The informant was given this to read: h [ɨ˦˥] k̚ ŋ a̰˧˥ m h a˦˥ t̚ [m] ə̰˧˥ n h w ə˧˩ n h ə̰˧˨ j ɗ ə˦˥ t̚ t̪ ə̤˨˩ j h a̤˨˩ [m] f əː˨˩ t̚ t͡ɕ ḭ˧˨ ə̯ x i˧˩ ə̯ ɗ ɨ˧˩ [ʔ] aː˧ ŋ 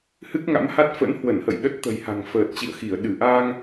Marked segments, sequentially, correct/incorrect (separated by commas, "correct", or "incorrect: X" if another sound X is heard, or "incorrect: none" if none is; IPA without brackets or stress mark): correct, incorrect: f, incorrect: ŋ, correct